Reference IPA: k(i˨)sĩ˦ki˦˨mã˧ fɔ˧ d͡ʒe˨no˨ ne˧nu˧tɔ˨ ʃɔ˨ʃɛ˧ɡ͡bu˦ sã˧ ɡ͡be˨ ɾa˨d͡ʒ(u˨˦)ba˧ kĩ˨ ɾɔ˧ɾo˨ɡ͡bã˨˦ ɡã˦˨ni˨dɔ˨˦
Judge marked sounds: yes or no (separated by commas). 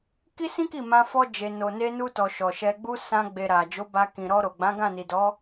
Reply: no, no